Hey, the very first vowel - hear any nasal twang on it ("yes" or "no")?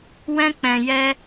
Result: yes